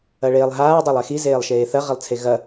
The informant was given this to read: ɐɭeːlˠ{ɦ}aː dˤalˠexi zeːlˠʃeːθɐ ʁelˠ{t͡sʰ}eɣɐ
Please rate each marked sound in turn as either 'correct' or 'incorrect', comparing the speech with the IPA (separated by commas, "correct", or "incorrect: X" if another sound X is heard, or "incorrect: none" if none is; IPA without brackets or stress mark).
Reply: correct, correct